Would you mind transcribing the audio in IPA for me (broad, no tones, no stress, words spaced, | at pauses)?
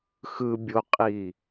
xɯ bʲoqʼi